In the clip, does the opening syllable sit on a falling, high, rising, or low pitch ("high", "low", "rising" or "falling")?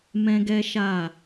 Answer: high